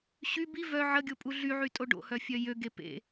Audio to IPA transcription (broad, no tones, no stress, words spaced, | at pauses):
ɕy bi vœ ʕəɡʲopʼu ɮyʕytʼo ɖo̰hœfʲœ jøɡe pḛ